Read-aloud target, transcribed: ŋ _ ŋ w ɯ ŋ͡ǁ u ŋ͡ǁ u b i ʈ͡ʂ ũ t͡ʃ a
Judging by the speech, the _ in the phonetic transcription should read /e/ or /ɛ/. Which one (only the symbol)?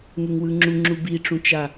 e